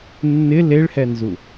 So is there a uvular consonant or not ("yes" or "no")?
no